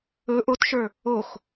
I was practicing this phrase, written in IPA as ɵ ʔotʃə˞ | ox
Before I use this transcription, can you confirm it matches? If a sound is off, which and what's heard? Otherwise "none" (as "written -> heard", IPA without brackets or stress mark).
none